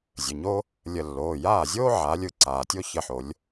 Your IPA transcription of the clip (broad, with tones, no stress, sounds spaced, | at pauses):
zʲ ə˩˧˩ ɲ o˥ | lʲ ə˧˩ lː oː˩˧˩ j aː˥˩ zʲ oː˥ ʕ aː˩˧ lʲ ɯ˧˩ ǀ aː˩ tʲ o˥ ç ə˧˩ ħ o˩˧ lʲ